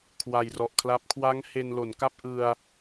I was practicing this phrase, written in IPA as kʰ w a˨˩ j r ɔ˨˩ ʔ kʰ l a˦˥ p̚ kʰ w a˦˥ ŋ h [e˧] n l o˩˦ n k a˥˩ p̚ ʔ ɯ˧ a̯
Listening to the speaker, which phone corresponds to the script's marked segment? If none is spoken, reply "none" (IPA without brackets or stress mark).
e˧